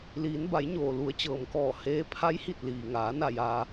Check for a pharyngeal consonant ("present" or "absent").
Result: absent